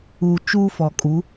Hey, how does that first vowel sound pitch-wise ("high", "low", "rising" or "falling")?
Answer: low